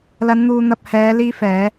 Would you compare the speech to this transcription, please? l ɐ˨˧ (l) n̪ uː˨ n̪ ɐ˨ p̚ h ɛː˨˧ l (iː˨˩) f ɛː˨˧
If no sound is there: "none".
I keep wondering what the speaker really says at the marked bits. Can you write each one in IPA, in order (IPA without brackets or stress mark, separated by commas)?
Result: n, iː˧